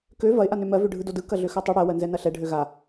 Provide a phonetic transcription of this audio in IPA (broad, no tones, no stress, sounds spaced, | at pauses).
k ø v ɐ ɪ̯ ʔ a n ø m ɜ v ø ɖʱ ɯ d o d ɯ k ɐ ɮ ø x ɜ tˤ ɯ ɽ ɜ w ɜ n z ɛ n ɐ ɬ ɛ ɖʱ ø ɣ a